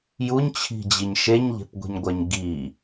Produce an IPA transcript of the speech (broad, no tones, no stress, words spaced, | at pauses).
juɲt͡ɕʰi̤d͡ʑiɲ ʃeɲʎe̤pɡʷe̤ɲɡʷɐɲ ɡi